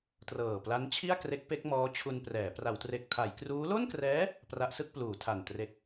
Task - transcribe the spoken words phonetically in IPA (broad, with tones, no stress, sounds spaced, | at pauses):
t r ɤː˨˩ p l a˦˥ n t͡ɕʰ i˥˩ a̯ k r e˦˥ k̚ p e˦˥ k̚ m ɔː˦˥ t͡ɕʰ u˧ n p r ɛː˩˦ p r a˩˦ w t r e˨˩ k̚ tʰ a˩˦ j k r uː˦˥ l o˥˩ n k r ɛː˦˥ | p r a˦˥ ʔ s ɯ˥˩ k̚ p l uː˩˦ tʰ a˨˩ n t r e˨˩ k̚